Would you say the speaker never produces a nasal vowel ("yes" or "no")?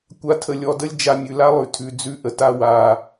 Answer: yes